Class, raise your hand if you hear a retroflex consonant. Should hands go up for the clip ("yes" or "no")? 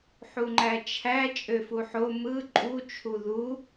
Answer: no